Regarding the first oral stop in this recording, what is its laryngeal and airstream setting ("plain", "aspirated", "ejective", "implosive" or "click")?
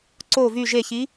click